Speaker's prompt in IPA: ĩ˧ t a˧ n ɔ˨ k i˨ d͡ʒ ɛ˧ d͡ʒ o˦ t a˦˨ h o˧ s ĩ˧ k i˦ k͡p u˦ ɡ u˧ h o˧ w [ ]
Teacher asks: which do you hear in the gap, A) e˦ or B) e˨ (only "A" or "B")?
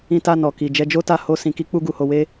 A